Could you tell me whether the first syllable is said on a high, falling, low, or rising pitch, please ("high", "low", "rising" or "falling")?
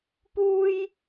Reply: high